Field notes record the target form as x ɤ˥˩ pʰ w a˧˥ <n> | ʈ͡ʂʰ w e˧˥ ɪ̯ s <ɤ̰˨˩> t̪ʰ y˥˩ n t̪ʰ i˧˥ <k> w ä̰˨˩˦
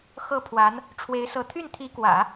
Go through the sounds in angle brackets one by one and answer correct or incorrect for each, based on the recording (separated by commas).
correct, incorrect, correct